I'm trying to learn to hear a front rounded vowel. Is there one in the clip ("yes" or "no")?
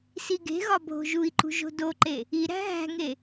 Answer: no